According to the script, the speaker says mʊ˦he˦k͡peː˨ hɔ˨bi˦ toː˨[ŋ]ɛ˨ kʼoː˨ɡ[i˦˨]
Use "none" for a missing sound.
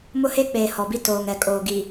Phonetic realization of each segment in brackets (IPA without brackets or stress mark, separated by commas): ŋ, i˨